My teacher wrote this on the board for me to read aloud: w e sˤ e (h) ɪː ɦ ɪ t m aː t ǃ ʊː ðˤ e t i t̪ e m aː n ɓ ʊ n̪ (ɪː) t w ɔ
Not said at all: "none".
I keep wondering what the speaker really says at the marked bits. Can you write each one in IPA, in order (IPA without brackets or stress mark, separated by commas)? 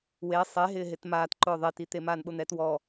ɦ, ɛː